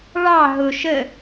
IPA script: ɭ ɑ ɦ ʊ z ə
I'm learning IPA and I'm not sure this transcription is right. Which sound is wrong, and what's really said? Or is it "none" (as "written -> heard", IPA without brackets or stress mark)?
z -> ʃ